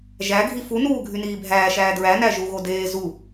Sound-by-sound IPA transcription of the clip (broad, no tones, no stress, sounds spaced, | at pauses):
ʒ æ ɡʱ i f u n uː ɡʱ y n iː bʱ æː ʃ æː d ɹ æ n æ ʒ u ɣ o d eː z u